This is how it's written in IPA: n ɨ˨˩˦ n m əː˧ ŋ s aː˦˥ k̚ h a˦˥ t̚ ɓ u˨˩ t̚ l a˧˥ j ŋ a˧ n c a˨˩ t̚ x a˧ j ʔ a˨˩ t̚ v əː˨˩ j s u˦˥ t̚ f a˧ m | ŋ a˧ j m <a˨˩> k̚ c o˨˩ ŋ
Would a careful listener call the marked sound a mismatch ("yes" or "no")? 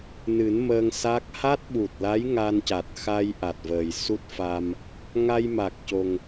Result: no